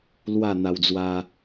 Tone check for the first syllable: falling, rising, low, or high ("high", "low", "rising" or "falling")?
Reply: falling